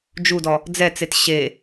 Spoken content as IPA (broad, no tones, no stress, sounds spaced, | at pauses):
d͡ʒ u d ɔ | d͡z ɛ t͡s e t ɕ e